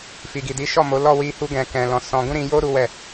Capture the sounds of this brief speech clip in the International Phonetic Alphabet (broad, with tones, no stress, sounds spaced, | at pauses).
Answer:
f i˨ ɡ i˨ d i˨˦ ʃ ɔ˦˨ m o˨˦ l ɔ˦˨ w i˧ h u˧ ɡ ɛ̃˨ k ɛ̃˨ l ɔ̃˨ s ɔ̃˧ ɡ ũ˦ ɾ ĩ˧ j o˦ ɾ u˦ w ɛ˦˨